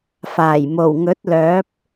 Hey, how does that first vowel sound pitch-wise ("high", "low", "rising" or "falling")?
low